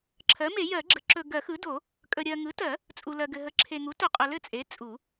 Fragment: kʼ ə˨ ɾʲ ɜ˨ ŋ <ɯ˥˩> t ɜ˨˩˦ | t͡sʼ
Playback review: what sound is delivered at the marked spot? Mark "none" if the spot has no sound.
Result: ɯ˩˥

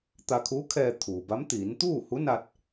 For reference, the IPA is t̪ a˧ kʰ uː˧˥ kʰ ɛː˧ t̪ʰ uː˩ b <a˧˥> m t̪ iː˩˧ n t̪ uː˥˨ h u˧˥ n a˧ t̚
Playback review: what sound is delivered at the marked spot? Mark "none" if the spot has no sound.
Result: a˧˥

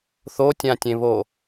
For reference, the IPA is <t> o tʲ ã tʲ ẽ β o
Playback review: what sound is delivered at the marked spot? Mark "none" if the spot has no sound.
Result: θ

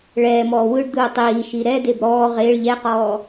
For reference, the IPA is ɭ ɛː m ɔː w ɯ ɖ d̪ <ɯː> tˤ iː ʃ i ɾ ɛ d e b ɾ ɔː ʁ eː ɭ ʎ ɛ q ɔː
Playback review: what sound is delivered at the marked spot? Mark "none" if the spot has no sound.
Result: ɯː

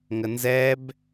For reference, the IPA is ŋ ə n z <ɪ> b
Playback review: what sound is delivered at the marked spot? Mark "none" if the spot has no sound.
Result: ɛ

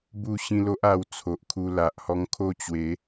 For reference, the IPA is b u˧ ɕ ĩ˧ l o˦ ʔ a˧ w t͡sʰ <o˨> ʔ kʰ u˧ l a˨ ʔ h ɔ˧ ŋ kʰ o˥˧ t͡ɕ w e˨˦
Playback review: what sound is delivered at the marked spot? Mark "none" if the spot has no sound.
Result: o˨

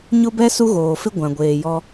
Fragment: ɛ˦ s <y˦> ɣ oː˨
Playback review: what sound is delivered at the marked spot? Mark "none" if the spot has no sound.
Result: u˦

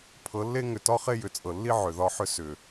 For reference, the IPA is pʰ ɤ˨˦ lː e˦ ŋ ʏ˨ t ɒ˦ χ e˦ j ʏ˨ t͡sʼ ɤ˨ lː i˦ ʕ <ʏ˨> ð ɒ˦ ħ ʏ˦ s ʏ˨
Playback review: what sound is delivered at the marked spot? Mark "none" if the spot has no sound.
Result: ʏ˨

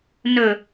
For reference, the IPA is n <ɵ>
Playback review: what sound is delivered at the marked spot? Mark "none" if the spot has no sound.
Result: ɵ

